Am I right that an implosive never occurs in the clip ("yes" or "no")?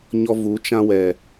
yes